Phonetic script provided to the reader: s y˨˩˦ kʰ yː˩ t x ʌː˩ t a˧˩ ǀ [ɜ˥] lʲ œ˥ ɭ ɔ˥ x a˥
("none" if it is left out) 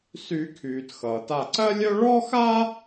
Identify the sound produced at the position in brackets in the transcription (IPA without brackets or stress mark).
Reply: ɜ˥